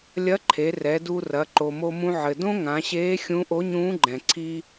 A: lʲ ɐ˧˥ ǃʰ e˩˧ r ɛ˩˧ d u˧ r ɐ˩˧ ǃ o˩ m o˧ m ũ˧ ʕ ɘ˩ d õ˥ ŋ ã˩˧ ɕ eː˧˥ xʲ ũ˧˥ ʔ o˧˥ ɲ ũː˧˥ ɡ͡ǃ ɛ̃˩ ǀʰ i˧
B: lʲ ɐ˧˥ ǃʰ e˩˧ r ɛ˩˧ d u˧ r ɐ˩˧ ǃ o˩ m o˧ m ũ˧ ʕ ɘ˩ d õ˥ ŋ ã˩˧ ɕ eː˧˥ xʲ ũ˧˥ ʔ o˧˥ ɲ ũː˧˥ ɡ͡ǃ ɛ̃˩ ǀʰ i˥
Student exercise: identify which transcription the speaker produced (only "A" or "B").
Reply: A